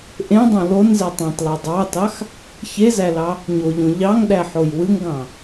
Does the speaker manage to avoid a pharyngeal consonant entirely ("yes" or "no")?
no